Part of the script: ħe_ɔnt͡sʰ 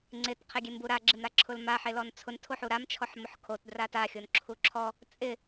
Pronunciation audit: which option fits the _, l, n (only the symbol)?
l